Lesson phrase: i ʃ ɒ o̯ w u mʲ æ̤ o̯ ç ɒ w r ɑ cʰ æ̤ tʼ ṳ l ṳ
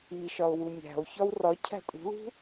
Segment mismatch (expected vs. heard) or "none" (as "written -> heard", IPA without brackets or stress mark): ɑ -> ɒ